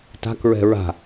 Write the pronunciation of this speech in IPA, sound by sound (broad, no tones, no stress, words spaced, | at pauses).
ta̤kɹɛ̤ ɹa̤